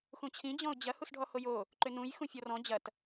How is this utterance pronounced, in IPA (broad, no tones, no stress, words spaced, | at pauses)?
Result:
xũt͡ɕʰĩ d͡ʑɔ̃ʊ̯d͡ʑɐ husɖʱɔhojo | ǃʏnũj xũfʲɔrɔ̃ d͡ʑɐt